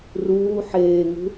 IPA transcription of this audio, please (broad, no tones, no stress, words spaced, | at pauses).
ruː ħeːŋṳ